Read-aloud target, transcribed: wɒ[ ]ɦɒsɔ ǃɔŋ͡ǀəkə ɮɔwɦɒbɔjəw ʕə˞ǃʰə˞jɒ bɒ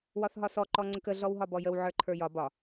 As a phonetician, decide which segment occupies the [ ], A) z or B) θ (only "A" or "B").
B